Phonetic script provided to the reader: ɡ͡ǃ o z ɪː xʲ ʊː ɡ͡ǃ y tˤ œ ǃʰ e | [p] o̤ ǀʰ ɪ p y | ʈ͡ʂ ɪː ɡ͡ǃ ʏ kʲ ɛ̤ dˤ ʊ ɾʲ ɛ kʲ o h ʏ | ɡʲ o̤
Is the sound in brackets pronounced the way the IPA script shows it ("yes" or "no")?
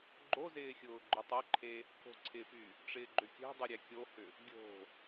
yes